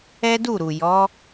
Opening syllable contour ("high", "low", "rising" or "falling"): high